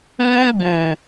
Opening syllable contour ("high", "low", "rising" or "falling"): high